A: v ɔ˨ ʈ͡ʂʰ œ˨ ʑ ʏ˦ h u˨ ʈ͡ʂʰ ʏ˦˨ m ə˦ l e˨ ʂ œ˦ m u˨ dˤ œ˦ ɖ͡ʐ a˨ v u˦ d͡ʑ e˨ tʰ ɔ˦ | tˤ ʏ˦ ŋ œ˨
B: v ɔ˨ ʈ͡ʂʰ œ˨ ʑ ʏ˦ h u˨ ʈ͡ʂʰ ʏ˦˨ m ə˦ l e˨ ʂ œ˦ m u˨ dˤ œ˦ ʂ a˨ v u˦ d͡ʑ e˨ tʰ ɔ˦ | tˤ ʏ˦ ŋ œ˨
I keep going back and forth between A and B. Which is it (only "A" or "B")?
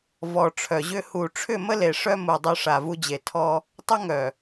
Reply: B